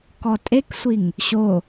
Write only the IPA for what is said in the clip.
k ɔ tʼ e k sʷ i ŋ | ɕ o

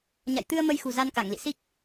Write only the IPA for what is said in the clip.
ɲ a̰˧˨ j t̪ ɨ˧ ə̯ m ə˧ j x ṳ˨˩ z a˧ n k a˧˩ ŋ l ḭ˧˨ s i˦˥ k̚

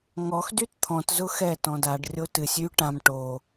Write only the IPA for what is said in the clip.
ŋ ɔ x d y t t̪ʰ ɔ̃ t z ʊ x ɛ t ɔ̃ d a ɖ rʲ o t ɨ sʲ y ʈ ã m ʈ o

